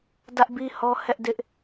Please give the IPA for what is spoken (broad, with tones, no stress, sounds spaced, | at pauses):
d ä˦ ʔ b i˦ h ɔ˦ h ɛ˦ ʔ d ɪ˦ ʔ